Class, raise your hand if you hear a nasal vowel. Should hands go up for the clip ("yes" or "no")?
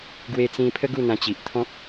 yes